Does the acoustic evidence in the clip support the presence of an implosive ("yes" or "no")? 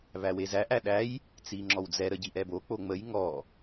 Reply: yes